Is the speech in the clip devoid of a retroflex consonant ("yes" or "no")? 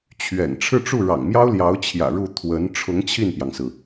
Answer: no